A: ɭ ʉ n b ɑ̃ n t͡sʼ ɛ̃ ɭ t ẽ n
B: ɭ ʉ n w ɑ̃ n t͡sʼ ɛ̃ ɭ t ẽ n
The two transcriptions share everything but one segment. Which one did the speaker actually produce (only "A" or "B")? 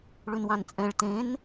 B